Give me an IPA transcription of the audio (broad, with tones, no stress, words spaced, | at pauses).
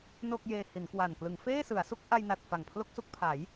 no˥˩k̚ jeː˧hi˩˦nkwa˨˩n klɯ˩˦ŋfeː˥˩sɯ˩˦a̯su˥˩k̚ ʔa˧jna˨˩t̚ fa˨˩ŋpʰlo˥˩k̚su˥˩k̚pʰa˩˦j